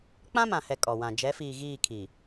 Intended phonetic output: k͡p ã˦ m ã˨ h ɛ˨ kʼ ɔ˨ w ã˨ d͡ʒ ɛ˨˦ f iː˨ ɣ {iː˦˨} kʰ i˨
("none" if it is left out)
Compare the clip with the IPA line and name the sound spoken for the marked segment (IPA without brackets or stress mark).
iː˦˨